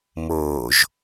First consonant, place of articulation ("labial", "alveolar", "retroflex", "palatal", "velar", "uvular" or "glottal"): labial